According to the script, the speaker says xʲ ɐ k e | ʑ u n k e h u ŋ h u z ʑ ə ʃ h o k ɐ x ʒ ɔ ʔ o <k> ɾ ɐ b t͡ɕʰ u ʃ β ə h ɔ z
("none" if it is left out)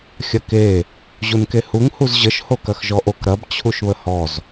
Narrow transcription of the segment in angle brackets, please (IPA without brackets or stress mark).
k